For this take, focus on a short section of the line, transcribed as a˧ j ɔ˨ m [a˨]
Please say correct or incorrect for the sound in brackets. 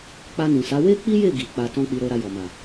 correct